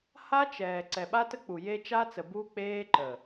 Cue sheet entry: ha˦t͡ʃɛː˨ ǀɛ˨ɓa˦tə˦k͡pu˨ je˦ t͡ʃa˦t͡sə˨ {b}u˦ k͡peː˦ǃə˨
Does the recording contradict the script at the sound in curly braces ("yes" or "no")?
no